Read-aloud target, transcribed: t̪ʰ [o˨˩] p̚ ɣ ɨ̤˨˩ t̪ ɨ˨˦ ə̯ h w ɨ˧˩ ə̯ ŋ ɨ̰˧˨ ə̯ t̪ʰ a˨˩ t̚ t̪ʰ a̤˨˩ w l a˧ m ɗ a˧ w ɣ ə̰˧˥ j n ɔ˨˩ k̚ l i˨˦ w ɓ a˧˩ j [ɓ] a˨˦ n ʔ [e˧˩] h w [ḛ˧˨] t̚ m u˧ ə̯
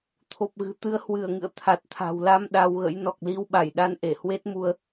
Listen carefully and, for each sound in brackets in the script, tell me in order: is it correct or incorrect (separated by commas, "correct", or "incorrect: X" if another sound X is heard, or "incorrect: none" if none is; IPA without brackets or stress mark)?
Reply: correct, incorrect: ɗ, correct, incorrect: e˦˥